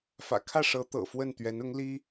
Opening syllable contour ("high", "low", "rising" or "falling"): low